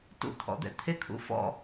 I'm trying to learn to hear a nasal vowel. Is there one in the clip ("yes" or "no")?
no